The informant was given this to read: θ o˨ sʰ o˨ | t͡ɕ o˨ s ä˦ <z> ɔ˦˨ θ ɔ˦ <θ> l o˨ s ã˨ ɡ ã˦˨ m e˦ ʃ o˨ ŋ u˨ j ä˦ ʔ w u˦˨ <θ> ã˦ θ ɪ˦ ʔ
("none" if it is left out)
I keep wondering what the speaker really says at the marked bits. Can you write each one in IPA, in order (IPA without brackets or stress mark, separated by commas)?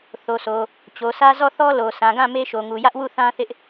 z, none, θ